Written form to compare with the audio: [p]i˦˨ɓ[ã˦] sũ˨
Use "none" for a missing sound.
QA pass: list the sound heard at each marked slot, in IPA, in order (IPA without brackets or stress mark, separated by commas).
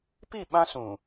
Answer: p, ã˦